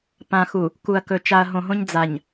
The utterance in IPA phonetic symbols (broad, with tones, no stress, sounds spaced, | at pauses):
p ã˨ x u˨ | k u˨ ɐ̯ k ɵ˨ t͡ʃ a˨ ɐ̯ ɦ õ˨ ɦ õ˦ ɲ d͡z a˨ ɲ